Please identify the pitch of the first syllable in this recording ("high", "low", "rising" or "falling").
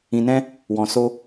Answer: low